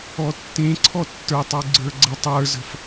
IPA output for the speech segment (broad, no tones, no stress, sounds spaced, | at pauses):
ɔ tː ẽ ǀʰ ɔ tː ə˞ tˤ u ɡ͡ǀ ə˞ ɡ͡ǀ ə tˤ ə˞ z ə̤ f